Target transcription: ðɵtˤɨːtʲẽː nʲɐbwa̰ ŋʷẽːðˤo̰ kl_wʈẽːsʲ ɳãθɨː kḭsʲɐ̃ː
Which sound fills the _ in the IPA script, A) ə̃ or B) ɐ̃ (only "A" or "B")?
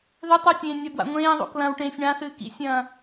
B